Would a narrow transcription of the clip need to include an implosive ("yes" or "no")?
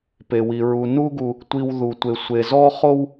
no